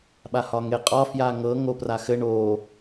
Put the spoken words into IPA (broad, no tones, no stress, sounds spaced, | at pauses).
ɓ a h ɒ ŋ e qʼ ɒ f j a ŋ ɤ ŋ o p r a x ɘ ɳ o